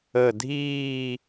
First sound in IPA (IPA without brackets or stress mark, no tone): ə